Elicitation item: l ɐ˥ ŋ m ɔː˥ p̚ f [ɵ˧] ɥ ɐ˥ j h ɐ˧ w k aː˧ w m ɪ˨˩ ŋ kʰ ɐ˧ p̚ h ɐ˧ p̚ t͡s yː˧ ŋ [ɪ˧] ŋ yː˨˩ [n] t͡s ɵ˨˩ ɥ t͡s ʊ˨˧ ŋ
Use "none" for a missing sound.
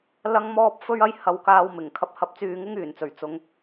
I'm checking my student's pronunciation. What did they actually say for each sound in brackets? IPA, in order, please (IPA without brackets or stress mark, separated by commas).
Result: ɵ˥, ɪ˥, n